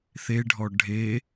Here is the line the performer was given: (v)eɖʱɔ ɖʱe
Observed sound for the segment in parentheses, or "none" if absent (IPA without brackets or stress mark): θ